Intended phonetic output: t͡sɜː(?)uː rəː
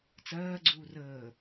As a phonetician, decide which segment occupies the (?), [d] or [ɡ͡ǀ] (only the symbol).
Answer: ɡ͡ǀ